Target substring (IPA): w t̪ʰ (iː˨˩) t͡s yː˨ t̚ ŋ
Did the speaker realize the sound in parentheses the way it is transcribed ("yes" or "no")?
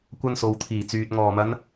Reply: yes